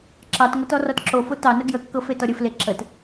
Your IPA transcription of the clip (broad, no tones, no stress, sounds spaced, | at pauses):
ǁ ɑ t ŋ o t ɔ r ɔ t ǁ o f o t ɑ n ə ɡ j ə kː ɤ f e t ɔ ɾʲ ɘ f l e ǁ ə t